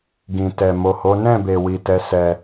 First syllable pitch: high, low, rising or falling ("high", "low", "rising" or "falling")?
low